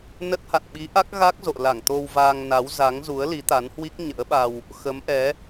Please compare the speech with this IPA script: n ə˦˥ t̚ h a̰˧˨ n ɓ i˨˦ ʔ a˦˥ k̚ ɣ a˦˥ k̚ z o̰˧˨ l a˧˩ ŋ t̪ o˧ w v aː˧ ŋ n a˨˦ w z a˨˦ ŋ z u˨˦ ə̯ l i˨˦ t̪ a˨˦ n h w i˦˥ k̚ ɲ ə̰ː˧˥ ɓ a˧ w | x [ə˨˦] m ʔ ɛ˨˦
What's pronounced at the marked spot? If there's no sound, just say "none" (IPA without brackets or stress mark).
ə˨˦